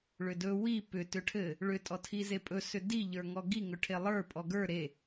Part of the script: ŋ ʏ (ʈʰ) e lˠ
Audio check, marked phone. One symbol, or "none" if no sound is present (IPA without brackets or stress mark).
ʈʰ